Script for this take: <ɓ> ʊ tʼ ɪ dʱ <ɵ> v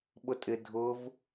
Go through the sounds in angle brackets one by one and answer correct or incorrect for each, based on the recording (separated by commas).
correct, incorrect